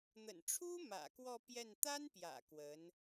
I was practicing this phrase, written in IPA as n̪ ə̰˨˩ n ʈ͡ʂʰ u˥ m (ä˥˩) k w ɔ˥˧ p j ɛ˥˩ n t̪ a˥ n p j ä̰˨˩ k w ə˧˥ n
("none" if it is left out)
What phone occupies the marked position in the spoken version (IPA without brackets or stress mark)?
ä̰˨˩